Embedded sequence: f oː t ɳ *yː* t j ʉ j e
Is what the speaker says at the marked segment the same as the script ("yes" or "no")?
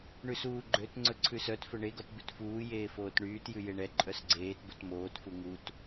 yes